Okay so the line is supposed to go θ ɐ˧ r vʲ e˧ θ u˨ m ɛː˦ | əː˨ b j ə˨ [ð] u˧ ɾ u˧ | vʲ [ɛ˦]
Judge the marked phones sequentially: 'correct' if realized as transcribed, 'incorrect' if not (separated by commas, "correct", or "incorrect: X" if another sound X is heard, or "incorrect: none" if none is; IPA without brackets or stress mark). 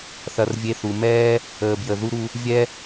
correct, correct